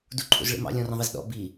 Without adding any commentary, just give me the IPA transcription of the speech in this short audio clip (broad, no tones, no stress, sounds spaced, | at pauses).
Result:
d u ǃʰ ṵ z ɭ ḭ m ɑ̰ lʲ ɔ̃ r ə̃ ðˤ i z ɗ ɔ̰ b i